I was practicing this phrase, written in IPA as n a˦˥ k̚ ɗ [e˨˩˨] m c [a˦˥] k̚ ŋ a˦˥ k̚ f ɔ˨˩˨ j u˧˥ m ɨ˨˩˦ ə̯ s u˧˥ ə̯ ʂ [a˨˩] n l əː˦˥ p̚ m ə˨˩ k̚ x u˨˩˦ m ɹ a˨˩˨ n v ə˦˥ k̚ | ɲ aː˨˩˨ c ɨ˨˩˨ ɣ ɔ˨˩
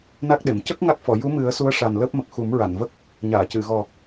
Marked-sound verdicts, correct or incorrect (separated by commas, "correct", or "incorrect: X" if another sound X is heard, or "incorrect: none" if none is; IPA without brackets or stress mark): correct, incorrect: ə˦˥, correct